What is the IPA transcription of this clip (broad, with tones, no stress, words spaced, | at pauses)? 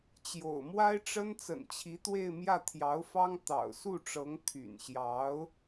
t͡ɕjo̰˨˩ʊ̯mwa˥ɪ̯ʈ͡ʂə˥n t͡sə̰˨˩nt͡ɕʰi˧˥t̪we˥˧ɪ̯mjä˥˩ t̪ʰjɑ˧˥ʊ̯fɑ˥ŋ t̪ɑ̰˨˩ʊ̯ su˥˩ʈ͡ʂɤ˧˥ŋ t̪ʰy̰˨˩nɕjɑ˧˥ʊ̯